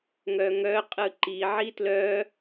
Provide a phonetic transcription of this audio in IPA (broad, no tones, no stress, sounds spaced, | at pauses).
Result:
ŋ œ ŋ œ qʼ ɯ ǃ i ʕ i t l œ